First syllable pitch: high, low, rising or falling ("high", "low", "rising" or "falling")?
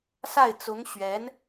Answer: falling